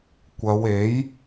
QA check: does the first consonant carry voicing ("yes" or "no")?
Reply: no